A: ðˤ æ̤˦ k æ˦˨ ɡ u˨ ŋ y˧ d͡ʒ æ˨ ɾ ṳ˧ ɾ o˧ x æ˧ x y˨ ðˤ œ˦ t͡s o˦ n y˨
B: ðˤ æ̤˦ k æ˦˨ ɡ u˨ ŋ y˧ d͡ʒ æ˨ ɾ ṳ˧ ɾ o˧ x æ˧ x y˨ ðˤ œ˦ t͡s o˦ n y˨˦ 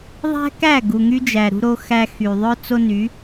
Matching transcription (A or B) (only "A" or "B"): B